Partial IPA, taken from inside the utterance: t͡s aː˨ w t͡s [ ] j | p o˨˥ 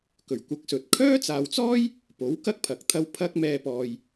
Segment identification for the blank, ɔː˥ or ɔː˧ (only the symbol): ɔː˥